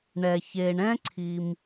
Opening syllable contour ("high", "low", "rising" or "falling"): low